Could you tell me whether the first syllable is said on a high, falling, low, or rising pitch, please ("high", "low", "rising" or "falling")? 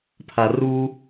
low